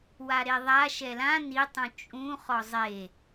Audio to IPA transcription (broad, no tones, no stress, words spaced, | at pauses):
waɾeðˤa ʃɛlã nitˤũ t͡ʃʼũ χɔzˤe